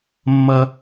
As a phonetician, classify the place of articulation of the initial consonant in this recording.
labial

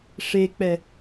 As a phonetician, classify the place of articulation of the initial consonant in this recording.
retroflex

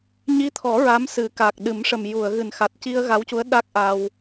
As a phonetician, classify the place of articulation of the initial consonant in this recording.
palatal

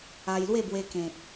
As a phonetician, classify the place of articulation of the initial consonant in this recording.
palatal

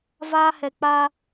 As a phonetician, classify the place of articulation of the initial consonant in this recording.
labial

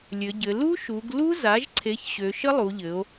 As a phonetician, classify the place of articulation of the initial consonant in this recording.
alveolar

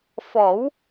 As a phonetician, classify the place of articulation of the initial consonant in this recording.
labial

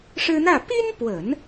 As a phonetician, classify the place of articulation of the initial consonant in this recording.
retroflex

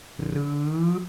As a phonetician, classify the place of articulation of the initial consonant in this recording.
alveolar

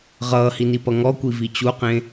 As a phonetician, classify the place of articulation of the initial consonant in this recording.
uvular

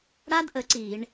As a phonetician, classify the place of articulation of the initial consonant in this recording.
retroflex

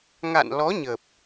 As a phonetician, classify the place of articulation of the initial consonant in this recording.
velar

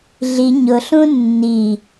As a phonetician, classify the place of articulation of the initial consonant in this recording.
alveolar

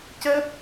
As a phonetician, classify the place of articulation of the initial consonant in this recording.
palatal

